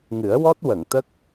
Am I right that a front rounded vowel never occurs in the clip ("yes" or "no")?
yes